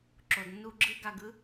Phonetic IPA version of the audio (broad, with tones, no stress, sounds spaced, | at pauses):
ǁ o˨ d nː u˧ ɡ͡ǁ ɯ˦ ɡ a˧ ɡ ɯ˦